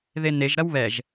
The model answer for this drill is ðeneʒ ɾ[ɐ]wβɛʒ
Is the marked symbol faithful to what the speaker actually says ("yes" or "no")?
yes